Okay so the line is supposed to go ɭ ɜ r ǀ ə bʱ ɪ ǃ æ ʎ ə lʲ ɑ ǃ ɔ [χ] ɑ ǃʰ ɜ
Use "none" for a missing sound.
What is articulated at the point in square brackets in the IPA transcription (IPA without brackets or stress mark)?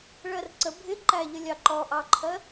ʔ